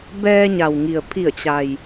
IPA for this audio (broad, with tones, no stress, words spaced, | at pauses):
bɛː˧ɲa˩w ŋi˩ə̯pʰi˧˩ə̯ t͡ɕa˩j